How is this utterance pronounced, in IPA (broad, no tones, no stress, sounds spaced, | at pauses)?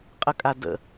qʼ ə kʼ a d ə̰